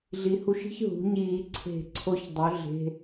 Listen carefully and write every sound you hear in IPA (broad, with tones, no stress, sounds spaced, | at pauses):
ɮ i˩˧ h u˧˩˧ ʃ i̤˧˥˧ ç ɦ ṳ˩˧ ɲ iː˧˩˧ ǀʰ e̤˧˩˧ ǀʰ o˧˥ ç dˤ ɵ˩˥ ɮ e̤˧˥˧